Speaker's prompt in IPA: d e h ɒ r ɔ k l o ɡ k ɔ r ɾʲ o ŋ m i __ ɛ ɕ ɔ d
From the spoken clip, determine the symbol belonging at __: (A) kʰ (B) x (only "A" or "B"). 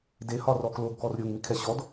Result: A